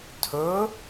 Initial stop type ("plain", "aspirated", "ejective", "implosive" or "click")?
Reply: aspirated